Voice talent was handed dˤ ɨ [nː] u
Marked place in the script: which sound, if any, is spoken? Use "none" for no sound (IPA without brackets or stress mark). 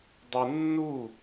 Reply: nː